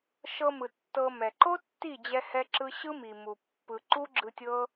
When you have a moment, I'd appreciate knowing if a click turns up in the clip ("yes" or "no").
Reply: yes